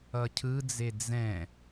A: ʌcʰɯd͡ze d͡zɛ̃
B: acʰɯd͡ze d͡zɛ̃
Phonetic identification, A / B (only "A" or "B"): A